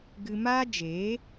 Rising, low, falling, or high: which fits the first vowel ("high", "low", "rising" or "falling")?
high